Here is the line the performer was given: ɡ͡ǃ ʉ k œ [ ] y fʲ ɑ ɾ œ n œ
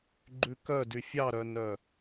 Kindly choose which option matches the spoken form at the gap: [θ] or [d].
d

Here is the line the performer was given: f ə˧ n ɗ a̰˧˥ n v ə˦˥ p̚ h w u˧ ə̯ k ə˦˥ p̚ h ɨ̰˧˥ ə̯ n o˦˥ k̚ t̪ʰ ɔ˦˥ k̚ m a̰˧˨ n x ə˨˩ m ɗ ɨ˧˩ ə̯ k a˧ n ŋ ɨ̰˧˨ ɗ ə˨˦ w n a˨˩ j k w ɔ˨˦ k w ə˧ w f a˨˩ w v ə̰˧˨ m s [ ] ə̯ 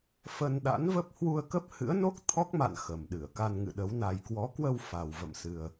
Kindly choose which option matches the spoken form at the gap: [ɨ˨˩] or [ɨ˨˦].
ɨ˨˩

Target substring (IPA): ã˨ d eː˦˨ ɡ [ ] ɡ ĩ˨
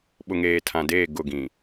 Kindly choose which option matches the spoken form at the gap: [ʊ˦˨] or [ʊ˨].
ʊ˦˨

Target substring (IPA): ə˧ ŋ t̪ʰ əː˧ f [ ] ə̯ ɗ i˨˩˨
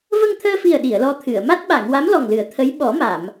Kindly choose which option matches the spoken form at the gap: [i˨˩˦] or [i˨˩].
i˨˩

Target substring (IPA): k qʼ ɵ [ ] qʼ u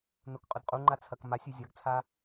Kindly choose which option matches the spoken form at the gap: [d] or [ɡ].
d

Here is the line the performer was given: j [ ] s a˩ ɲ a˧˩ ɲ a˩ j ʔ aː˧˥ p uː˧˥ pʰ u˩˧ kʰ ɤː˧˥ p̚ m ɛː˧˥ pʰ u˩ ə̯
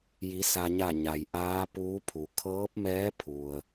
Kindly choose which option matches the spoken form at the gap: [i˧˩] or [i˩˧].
i˩˧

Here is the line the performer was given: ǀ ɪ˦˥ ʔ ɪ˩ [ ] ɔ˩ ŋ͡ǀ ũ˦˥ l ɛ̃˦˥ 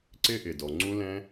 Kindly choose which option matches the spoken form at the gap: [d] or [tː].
d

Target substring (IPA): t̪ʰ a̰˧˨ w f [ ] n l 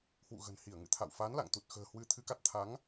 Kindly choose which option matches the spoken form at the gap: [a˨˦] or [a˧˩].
a˨˦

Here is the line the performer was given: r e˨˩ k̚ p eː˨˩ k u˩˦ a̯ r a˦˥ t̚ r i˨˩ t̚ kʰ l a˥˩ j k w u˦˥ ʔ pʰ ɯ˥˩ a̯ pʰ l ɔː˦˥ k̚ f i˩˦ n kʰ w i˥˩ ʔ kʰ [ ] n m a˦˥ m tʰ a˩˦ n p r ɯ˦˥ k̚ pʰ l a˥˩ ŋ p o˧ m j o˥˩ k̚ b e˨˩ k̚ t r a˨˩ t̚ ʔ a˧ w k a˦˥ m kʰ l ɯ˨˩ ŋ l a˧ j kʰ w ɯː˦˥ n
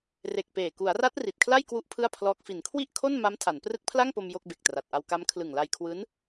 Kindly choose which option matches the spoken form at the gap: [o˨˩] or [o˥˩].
o˥˩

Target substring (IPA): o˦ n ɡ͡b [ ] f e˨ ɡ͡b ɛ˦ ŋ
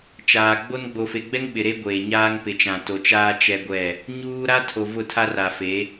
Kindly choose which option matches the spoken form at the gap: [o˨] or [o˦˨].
o˨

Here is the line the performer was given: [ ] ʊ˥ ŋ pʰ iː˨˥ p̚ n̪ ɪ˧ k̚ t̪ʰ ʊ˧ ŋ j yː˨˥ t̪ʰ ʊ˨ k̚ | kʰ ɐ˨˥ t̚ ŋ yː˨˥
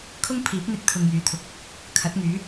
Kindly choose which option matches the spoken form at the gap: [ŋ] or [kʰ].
kʰ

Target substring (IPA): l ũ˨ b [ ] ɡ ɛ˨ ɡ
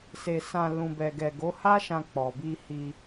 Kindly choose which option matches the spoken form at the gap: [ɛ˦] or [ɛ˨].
ɛ˨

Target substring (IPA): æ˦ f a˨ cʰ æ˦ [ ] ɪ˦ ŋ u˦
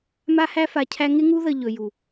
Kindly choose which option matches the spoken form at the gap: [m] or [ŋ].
ŋ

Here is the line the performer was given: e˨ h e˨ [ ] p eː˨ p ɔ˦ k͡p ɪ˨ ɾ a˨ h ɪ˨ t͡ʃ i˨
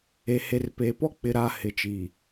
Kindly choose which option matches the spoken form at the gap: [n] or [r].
r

